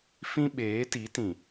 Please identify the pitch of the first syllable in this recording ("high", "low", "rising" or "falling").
high